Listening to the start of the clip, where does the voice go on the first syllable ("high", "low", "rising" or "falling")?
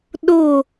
falling